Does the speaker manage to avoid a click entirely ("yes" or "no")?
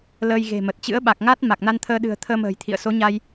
yes